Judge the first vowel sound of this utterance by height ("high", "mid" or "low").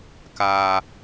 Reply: low